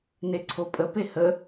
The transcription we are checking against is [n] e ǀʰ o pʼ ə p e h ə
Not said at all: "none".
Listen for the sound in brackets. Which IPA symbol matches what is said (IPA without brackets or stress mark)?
n